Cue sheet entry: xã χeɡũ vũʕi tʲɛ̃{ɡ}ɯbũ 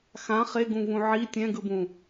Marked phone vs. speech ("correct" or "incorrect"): correct